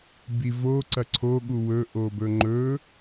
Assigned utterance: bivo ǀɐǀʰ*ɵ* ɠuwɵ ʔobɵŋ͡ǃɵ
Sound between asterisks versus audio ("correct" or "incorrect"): incorrect